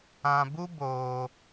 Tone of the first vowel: low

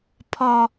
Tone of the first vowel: high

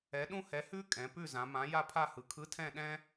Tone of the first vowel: rising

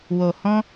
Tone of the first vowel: low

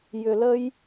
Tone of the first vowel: low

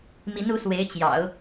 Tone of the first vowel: rising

